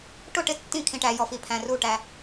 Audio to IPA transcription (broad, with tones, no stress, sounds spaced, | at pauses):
ʈ ʊ˦˨ ʈ ɪ˦˨ tː ĩ˦˨ kʰ ĩ˨ ʈ æ˨ j ɔ˨ f i˨ pʰ æ̃˨ r u˦˨ ʈ æ˨